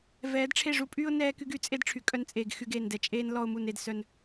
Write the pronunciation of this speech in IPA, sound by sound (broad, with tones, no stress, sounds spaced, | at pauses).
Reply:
v ɛː˨˦ d ʈ͡ʂʰ e˦˨ ʐ u˦ pʼ yː˦ ʊ̯ n ɛː˦ k y˦ ɡ y˧ t͡sʼ e˦ d ʈ͡ʂʰ y˨ kʼ œ˧ n t͡sʼ eː˨ ɡ x y˧ ɡ eː˨ n d ɛ˨ t͡ʃʼ eː˦ n l ɔ˧ ʊ̯ m u˨ n e˨ d s œ˨ n